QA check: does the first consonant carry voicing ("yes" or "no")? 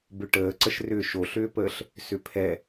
yes